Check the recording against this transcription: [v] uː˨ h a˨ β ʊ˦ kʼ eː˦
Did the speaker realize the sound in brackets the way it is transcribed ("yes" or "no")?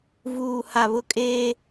yes